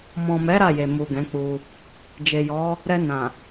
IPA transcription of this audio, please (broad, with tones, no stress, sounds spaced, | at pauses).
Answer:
m ɔ̃˨ m ɛ˨˦ ɾ a˦˨ j e˨ m u˨ ɡ ɛ̃˨˦ k͡p u˧ | d͡ʒ e˨ j ɔ˨˦ | ɾ ɛ˧ n ã˨